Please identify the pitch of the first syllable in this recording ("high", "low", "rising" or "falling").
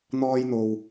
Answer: high